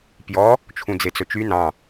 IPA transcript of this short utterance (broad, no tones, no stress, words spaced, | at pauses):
pjɔ | t͡ʃʰũd͡zet͡sɵt͡ʃy nɑ̃